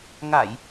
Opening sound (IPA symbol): ŋ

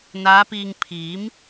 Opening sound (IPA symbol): n̪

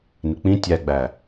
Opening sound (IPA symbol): n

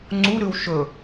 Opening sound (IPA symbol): ŋ͡ǀ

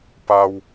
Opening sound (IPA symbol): p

